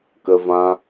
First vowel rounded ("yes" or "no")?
no